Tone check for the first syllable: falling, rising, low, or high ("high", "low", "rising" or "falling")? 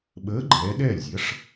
rising